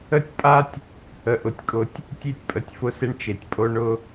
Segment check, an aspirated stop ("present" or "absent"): absent